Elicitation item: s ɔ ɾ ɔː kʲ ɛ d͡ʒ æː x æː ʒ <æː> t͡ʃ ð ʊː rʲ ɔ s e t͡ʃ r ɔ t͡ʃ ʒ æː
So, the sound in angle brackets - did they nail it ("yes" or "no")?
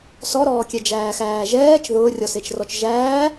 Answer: no